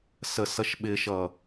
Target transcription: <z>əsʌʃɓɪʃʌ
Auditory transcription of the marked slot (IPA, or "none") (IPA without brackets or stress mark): s